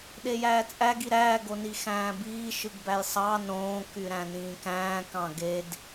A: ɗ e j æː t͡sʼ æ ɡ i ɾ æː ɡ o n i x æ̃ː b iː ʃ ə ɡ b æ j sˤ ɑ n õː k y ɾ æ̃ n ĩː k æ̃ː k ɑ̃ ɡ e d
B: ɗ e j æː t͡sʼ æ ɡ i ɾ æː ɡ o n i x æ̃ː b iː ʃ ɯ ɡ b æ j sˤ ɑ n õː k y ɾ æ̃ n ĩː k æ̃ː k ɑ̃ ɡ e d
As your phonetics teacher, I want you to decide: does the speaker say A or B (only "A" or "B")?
B